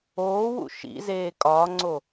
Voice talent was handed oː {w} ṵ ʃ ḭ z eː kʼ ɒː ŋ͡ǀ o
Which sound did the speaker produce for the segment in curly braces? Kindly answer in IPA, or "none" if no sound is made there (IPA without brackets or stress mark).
w